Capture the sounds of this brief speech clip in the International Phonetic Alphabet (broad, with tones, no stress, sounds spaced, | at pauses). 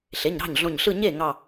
ɬ e˩˧˩ ɲ ɾ ɑ̤˥˩ ɲ ɮ õ˧˩ ɲ ɬ ɯ˥˧ ɲ e˥˩ ŋ ɑ˧˩